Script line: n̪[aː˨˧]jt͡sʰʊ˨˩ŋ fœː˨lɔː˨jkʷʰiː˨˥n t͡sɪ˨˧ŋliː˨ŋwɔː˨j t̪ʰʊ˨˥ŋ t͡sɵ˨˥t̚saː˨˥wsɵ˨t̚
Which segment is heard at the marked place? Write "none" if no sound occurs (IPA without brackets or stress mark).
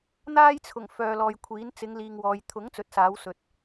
aː˥